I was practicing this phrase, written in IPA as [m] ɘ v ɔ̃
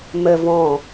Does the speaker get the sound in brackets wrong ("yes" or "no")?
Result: no